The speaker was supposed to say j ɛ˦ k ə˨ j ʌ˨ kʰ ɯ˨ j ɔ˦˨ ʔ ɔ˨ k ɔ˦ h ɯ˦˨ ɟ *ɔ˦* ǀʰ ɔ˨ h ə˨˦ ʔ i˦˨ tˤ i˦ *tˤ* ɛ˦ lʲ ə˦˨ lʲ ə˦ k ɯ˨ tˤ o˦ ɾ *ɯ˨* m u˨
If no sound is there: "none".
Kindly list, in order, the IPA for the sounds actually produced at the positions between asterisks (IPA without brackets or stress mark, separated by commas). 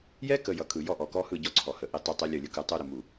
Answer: ɔ˦, tˤ, ə˨